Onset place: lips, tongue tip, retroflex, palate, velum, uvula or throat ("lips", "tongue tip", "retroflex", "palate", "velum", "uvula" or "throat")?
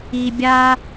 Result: lips